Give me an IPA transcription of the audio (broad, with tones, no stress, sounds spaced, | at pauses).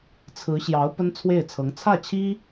t͡sʰ ɹ̩˧˥ ɕ j ɑ˧˥ ʊ̯ p ə˥ n t͡sʰ w e˥˩ ɪ̯ t͡sʰ ɤ˧˥ ŋ t͡sʰ ä˥˩ t͡ɕʰ i˥